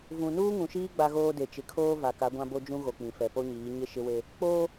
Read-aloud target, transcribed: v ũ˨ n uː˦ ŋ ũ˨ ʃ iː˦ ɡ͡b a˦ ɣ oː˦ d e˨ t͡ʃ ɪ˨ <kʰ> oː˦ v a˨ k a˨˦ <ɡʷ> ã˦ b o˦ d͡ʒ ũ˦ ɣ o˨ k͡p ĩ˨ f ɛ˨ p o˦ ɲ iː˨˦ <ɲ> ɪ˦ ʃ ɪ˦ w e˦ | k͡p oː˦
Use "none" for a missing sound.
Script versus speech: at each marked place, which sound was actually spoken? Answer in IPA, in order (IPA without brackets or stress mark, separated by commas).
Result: kʰ, ɡʷ, ɲ